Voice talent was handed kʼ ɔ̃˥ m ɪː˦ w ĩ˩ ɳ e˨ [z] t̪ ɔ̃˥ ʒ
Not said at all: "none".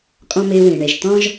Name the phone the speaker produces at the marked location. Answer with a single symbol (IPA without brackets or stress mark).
ʒ